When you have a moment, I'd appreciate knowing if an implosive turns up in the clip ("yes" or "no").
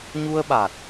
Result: yes